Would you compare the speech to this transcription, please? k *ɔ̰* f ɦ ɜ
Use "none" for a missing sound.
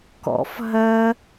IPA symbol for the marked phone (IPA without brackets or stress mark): ɔ̰